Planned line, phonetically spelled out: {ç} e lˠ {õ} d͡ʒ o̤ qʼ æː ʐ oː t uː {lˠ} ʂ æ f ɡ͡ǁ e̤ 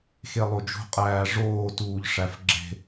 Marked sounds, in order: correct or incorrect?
incorrect: x, incorrect: o, incorrect: ʎ

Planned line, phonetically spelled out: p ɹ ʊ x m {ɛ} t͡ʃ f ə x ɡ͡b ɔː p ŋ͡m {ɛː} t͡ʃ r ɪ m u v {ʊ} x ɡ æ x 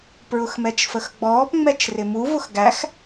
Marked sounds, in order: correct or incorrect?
correct, incorrect: ɛ, correct

